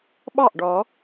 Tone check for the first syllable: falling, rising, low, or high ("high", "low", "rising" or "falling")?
falling